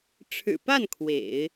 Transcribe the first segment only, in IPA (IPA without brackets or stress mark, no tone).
ʈ͡ʂʰ